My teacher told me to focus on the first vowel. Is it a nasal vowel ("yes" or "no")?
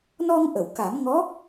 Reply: no